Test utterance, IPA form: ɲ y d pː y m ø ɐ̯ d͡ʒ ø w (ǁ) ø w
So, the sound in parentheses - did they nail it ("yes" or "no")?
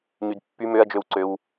no